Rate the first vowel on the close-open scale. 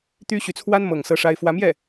close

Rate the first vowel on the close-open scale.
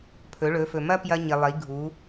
mid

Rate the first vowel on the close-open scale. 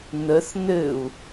mid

